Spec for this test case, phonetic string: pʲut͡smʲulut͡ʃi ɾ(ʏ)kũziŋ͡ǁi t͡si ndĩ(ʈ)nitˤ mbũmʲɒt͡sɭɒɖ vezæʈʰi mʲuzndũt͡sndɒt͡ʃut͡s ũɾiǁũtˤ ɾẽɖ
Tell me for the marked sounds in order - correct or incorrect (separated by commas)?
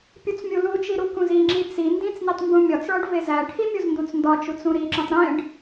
incorrect, incorrect